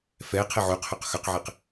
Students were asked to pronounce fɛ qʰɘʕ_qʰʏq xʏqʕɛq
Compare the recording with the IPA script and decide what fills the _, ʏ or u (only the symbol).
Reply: u